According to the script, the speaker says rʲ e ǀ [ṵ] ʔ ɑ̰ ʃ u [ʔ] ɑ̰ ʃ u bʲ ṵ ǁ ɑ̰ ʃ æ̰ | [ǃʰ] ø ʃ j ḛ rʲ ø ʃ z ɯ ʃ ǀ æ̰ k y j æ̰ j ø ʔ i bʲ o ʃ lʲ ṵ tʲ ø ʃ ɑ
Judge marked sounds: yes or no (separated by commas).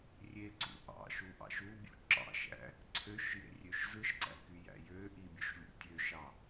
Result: yes, yes, no